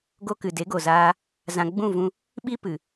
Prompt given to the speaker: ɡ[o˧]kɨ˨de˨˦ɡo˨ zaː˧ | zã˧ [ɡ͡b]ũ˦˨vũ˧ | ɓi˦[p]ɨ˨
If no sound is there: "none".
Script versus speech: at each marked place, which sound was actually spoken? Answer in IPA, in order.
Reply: o˧, ɡ͡b, p

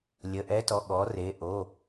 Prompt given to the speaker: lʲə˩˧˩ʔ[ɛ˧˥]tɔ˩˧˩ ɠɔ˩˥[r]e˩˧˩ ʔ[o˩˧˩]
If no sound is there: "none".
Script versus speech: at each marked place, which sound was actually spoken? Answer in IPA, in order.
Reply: ɛ˧˥, r, o˩˧˩

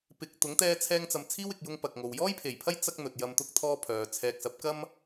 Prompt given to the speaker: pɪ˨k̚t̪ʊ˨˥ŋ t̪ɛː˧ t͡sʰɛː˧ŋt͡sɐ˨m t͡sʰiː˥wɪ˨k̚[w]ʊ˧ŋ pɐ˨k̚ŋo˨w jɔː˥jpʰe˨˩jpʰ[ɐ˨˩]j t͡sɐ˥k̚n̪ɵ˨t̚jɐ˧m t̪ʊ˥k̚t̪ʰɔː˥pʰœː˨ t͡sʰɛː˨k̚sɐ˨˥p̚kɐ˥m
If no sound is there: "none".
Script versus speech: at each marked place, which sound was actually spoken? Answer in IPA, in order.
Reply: j, ɐ˥

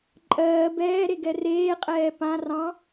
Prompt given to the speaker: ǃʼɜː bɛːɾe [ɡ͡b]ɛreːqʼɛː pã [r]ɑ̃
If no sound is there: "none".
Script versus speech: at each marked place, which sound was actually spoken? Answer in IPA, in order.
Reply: ɡ, r

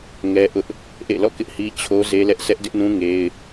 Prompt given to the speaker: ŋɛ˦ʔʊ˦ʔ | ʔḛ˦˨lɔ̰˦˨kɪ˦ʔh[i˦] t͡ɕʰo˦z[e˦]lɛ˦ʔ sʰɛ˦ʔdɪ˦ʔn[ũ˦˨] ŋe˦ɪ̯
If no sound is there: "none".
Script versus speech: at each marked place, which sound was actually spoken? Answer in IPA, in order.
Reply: i˦, e˦, ũ˦

